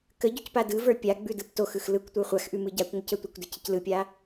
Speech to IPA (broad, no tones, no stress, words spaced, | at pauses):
kə ɟʉcpadɯvə˞ pʲa ɡ͡bʉdɯptoxɯx lɯkʷ tʷə˞χʷaxʔʉ mɯɟakʷŋʷəc ətʷɪkʷdɪ cʰɪclɯpʲa